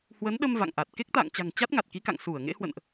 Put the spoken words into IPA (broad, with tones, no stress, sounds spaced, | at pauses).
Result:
h w ə˨˦ n ɗ ə˧ m v a̰˧˨ ŋ ʔ a˨˩ t̚ k e˦˥ k̚ t̪ a̰ː˧˨ ŋ t͡ɕ a̤˨˩ ŋ t͡ɕ a˦˥ t̚ ŋ a˨˩ t̚ k i˨˦ k a̰˧˨ ŋ s u˧˩ ə̯ ŋ ḛ˧˥ h w ə̰˧˨ n ʔ